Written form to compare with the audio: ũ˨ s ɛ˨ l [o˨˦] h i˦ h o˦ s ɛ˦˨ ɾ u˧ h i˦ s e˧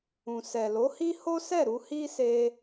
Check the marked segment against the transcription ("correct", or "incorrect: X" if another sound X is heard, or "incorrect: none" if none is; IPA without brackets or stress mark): correct